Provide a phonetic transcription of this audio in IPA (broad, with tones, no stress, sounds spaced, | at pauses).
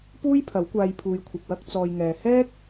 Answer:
p uː˥ j pʰ ɐ˨˥ w kʷ aː˧ j pʰ uː˨ j kʷʰ ɐ˨ k̚ w ɐ˧ k̚ t͡s ɔː˧ j ŋ ɛː˧ h ɛː˥ k̚